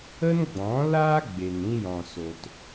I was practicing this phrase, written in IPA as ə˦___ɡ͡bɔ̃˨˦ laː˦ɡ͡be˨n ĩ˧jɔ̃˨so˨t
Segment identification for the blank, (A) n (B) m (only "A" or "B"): A